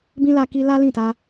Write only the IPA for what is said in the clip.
b ĩ˦ l a˦ k i˦ l a˦ l ĩ˦˨ t a˧

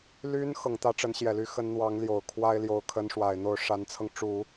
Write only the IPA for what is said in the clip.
l y˧˥ n x ɤ˨˩ ŋ t̪ ä˥ ʈ͡ʂ ə˧˥ n ɕ j ɛ˨˩ l y˧˥ x ə˧˥ n n̪ w ɑ˧˥ ŋ l j o˨˩ ʊ̯ kʰ w a˥ ɪ̯ l j o˧˥ ʊ̯ kʰ ə˧˥ n ʂ w a˨˩ ɪ̯ n̪ o˥˩ ʊ̯ ʂ a˧˥ n t͡sʰ ɤ˧ ŋ ʈ͡ʂ u˨˩˦

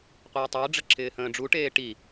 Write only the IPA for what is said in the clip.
qʷ əː tˤ əː ɖ͡ʐ ə ǁʰ ɪː h ə̃ː ɖ͡ʐ u ʈ eː ʈ i

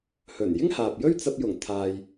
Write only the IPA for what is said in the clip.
h ɵ˨˩ n j ɪ˥ ŋ h aː˨ p̚ j ɵ˥ ɥ t͡s ɐ˧ p̚ j ʊ˨˩ ŋ t̪ʰ aː˨ j

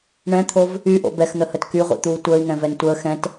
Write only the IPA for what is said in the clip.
ɳ ɛ̃ t̪ʰ o v | y ʔ o̰ b ɛ x n̪ ə h ə t k y ʁʷ ḭ t̪ uː tʷ əː i̯ ŋ ɛ̃ v ɛ n tʷ əː x ɛ̃ t

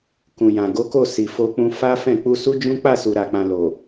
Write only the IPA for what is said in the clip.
k ũ˨ j ã˨ ɡ o˨˦ k o˦˨ s i˨ f o˧ k͡p ũ˧ f a˦ f ɛ̃˦˨ k͡p u˧ s u˦ d͡ʒ ũ˦ k͡p a˦˨ s u˨ ɾ a˨ k͡p ã˨ l o˨

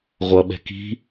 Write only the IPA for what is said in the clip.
ʁʷ ʌ ɓ ɛ̤ k i̤

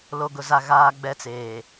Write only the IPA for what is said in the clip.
l o˨ ɡ ʊ˨ z a˨ ɣ aː˦ ɡ͡b ɛ˦ t͡s eː˨

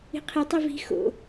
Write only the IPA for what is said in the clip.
i̤ qʰ e tˤ i v i̤ x o̰

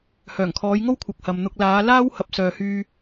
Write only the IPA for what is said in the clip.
h œː˨˩ ŋ kʰ ɔː˨˧ j ŋ o˥ w kʷʰ ɐ˨ k̚ h ɐ˨ m n̪ ʊ˧ k̚ l aː˨˧ l aː˥ w h ɐ˨˥ p̚ s œː˨ h yː˧

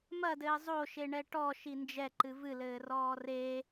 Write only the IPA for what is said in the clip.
m ɐ d ɘː zˤ o ʃ e ɳ ɛ ʈ ɔ ʃ i n d͡ʒ ɛ ǃ ɨ v ɨ l ɘː r ɔː r e

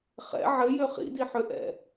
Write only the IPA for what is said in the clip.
χ ɛ̰ ʕ ɘ j ø χ ḭ d i ħ ø ʔ ɛ̰

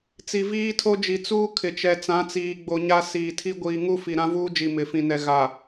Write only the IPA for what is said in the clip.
t͡s i˨ v iː˦ tʰ o˦ d͡ʒ i˨ t͡s uː˦ kʰ ɪ˨ t͡ʃ ɛ˨ t͡s ã˨˦ t͡s iː˨ ɡ͡b o˨ ɲ a˦ s iː˨ tʰ i˦ ɡʷ iː˨ ŋ u˦ f i˨ ɾ ã˦ v uː˦ d͡ʒ i˨ m ɪ˨ f ĩ˨ n ɛ˨ ɣ a˨

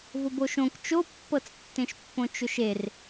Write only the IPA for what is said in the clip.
v ʊ b o ʃ õ k t͡ʃ o pː ɤ t͡s tː ẽ ʃ pː õ t͡ʃ ʊ ʃ e r

